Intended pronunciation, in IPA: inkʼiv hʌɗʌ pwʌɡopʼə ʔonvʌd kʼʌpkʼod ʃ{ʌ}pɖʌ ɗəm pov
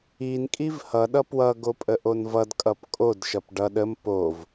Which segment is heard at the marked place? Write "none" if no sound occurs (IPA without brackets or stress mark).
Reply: ʌ